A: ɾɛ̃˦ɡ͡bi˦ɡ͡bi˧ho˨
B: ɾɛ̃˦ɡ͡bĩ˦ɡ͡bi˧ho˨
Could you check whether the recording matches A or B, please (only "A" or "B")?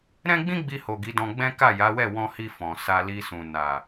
B